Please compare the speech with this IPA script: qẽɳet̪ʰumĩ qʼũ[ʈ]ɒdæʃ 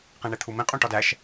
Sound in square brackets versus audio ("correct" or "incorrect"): correct